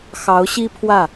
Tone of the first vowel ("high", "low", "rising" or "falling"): rising